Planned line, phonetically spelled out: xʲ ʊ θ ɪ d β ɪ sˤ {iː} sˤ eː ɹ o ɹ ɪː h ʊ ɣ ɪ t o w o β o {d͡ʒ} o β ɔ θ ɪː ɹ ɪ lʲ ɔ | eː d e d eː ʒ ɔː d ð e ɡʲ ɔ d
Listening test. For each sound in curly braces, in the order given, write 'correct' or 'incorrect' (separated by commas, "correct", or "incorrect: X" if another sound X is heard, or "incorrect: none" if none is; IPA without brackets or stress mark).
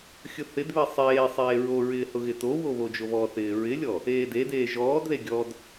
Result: incorrect: eː, correct